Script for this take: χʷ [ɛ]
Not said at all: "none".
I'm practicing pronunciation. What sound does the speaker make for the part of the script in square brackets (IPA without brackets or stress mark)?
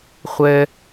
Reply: ɛ